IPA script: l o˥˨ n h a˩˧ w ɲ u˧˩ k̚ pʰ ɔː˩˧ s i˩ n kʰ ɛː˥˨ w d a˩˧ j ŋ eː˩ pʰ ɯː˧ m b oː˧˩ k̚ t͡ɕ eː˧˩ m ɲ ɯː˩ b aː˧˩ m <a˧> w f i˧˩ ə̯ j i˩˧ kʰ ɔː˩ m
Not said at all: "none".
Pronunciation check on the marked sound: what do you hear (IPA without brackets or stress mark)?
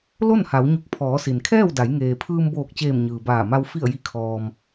a˧